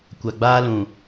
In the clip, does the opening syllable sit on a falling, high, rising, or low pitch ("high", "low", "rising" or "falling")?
low